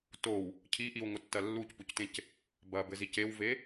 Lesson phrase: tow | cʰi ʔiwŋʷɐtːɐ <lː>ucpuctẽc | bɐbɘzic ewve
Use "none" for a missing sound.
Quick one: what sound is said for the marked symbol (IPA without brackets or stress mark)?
lː